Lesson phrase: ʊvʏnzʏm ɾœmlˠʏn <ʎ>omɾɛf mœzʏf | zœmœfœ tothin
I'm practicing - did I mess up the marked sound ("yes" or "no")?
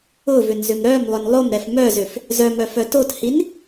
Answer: yes